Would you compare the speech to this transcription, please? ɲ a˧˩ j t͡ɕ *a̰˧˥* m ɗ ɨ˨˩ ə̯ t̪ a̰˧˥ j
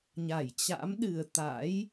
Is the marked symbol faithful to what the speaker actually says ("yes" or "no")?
yes